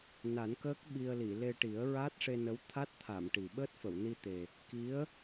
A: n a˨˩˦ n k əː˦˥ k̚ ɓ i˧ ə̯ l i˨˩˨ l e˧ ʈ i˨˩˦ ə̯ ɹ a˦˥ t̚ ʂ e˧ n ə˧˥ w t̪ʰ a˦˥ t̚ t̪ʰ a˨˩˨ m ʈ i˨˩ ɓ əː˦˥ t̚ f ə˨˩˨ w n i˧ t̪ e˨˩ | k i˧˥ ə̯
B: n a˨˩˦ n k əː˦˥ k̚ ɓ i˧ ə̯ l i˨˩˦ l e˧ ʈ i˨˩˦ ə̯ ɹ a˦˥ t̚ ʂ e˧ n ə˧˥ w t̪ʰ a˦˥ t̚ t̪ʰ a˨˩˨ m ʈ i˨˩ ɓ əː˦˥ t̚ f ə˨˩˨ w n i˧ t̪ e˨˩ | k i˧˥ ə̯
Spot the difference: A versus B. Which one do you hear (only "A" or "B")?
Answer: A